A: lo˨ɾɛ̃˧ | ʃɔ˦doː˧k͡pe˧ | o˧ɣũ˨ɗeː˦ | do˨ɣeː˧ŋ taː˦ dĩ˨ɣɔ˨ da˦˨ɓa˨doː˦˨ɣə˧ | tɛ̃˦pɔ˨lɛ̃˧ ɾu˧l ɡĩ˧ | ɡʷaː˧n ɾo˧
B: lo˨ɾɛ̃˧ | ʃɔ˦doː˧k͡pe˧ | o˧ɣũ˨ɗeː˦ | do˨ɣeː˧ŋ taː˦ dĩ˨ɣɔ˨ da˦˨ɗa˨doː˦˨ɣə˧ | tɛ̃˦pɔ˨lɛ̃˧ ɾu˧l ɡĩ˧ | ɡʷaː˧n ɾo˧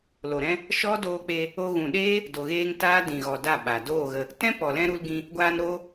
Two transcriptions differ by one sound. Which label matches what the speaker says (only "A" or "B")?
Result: A